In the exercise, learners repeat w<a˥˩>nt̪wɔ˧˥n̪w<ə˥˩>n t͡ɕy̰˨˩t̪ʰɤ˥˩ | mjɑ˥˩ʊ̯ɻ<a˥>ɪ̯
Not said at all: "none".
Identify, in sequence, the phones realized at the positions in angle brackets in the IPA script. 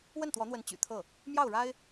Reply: ə˥˩, ə˧˥, a˥

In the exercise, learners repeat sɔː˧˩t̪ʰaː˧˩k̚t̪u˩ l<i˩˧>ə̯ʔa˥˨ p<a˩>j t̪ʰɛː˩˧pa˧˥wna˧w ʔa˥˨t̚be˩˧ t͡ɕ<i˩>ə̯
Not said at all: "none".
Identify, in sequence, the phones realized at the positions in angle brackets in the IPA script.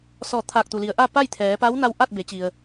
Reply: i˩˧, a˥˨, i˩

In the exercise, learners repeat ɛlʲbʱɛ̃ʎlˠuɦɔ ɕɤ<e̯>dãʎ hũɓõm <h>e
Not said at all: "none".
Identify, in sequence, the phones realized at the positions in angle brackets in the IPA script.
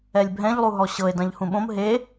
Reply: e̯, ɦ

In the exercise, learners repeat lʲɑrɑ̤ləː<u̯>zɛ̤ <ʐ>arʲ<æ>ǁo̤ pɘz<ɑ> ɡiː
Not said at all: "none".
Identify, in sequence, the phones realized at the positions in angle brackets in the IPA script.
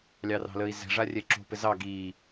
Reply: i̯, ʐ, ɛ, ɑ

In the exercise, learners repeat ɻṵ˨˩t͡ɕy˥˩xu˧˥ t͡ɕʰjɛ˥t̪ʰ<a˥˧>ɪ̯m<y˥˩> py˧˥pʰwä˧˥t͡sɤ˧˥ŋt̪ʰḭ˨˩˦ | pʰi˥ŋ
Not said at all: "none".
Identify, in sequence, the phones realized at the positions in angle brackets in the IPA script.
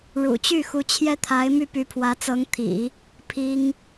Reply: a˧˥, y˥˩

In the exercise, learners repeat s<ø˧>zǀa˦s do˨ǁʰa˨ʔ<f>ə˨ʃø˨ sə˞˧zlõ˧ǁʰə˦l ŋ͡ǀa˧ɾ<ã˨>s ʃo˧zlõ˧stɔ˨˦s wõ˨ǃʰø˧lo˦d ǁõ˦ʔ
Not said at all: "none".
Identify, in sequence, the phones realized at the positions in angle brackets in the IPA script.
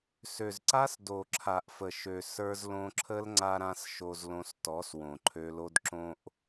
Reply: ø˨, f, ã˧

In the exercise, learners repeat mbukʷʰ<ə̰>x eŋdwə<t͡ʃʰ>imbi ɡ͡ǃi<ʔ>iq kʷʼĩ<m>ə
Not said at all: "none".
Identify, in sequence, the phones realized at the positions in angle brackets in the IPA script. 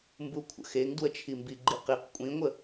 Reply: ə̰, t͡ʃʰ, q, ŋʷ

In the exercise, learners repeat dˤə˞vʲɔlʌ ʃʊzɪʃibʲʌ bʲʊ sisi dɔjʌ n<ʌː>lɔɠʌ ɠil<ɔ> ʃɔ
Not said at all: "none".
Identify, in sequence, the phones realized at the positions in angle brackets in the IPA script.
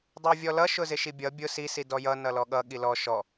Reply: ʌ, ɔ

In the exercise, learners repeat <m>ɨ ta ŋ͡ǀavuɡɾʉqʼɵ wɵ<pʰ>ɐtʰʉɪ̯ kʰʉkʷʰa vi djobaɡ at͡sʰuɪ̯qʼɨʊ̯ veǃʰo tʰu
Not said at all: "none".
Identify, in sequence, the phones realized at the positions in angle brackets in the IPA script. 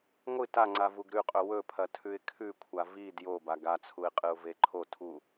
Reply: ŋʷ, pʰ

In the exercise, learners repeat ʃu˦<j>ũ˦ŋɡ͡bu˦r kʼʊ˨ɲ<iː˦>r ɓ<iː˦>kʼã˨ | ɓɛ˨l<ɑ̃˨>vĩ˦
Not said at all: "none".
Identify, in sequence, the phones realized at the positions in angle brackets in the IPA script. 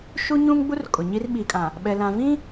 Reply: ɲ, i˦, iː˨, ã˨

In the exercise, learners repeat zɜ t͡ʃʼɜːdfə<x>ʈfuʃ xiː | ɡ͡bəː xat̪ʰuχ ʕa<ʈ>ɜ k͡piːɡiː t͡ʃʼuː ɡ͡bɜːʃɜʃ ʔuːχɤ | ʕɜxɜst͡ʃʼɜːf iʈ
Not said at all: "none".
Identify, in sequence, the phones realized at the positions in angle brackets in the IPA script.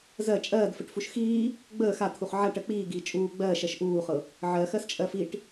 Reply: none, ʈ

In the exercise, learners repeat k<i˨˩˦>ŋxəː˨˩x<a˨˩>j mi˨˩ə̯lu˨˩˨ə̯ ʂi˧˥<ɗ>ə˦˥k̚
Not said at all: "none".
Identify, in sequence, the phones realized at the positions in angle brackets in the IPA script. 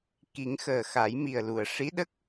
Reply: i˨˩˦, a˨˩˦, ɗ

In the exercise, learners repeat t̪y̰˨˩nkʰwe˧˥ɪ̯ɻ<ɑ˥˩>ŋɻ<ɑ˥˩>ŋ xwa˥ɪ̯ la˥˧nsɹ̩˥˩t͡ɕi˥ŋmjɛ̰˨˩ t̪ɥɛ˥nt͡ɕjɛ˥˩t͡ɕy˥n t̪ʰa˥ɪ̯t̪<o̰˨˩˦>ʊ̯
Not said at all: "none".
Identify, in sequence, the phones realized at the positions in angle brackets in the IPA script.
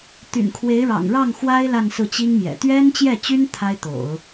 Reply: ɑ̰˨˩, ɑ˥˩, o̰˨˩˦

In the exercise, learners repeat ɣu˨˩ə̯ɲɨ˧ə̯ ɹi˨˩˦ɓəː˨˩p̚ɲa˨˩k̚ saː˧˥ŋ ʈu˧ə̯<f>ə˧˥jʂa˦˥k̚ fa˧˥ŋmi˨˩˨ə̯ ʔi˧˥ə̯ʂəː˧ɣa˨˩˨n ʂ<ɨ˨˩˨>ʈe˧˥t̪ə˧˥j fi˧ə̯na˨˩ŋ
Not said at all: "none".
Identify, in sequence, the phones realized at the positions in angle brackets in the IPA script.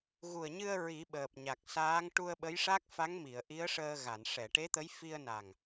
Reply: ɓ, ɛ˨˩˨

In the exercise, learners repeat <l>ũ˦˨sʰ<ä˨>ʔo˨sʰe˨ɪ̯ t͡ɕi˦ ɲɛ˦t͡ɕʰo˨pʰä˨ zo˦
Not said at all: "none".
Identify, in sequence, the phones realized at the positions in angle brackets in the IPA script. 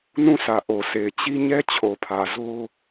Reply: n, ä˨

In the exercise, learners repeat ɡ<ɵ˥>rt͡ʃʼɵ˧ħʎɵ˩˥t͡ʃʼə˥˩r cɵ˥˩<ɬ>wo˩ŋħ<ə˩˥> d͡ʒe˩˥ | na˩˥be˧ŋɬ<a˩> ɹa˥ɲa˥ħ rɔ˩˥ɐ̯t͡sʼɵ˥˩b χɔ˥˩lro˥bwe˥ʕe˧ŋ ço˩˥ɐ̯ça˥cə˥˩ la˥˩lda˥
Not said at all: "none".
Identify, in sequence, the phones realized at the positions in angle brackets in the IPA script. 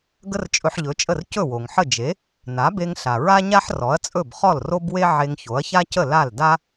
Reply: ə˥, none, ə˥˩, a˩

